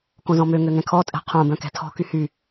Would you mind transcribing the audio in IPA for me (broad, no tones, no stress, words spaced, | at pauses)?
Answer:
kõzɔ̃mø ŋøŋɛ̃kʰɔ tʼɛ̤qʰõ bœ̃kɛ̤tʰɔ̤ kyhy